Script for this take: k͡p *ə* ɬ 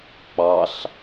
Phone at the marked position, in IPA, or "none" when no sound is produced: ɑ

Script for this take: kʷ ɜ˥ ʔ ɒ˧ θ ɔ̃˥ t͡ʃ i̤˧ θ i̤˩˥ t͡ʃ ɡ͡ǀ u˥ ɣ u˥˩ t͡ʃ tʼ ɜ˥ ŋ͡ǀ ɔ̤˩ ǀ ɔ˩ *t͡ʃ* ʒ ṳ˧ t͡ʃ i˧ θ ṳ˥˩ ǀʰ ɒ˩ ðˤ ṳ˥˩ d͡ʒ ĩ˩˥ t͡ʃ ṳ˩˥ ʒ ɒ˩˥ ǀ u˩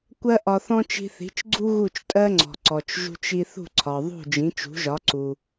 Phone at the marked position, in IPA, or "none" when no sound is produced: t͡ʃ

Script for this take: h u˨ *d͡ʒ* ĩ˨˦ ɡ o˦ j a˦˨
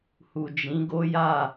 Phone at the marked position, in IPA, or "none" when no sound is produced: d͡ʒ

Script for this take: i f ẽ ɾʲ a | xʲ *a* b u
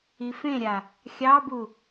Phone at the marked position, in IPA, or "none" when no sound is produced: ɑ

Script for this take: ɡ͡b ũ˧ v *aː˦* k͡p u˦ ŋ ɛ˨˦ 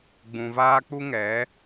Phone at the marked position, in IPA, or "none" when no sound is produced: aː˦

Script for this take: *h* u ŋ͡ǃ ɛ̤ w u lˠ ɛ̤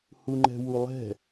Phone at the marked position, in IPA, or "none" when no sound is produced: h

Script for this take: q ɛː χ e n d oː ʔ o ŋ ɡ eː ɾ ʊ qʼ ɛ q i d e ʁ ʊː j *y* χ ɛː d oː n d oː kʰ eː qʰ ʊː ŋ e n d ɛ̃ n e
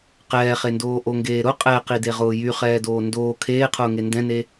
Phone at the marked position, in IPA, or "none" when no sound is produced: y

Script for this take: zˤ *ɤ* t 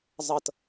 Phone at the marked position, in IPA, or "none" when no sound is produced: ɤ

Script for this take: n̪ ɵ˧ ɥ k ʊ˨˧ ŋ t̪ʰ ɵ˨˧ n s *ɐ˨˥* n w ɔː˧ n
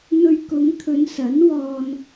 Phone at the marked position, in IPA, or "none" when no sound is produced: ɐ˨˥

